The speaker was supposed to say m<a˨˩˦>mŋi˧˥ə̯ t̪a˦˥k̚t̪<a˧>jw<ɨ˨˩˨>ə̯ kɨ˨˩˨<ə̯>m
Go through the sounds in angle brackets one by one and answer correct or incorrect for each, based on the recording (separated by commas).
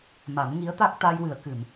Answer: correct, correct, correct, incorrect